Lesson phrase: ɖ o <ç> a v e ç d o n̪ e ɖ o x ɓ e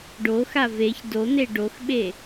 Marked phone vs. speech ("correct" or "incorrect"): incorrect